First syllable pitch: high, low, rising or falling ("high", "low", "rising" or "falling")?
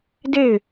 falling